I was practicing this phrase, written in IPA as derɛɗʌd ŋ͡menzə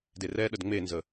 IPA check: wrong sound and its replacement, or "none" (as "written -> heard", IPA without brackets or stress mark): ʌ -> ə